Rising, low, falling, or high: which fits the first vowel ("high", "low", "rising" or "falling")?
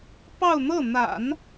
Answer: falling